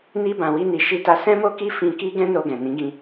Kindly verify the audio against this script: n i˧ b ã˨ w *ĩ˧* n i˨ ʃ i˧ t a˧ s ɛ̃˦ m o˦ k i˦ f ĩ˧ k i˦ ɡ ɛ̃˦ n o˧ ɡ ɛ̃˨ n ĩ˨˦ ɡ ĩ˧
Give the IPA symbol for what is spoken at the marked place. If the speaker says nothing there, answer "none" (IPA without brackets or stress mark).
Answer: i˧